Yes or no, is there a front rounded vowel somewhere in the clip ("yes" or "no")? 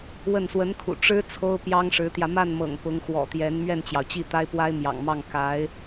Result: no